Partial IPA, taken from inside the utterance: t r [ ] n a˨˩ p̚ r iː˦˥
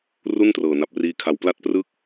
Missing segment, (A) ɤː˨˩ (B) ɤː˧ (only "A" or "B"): A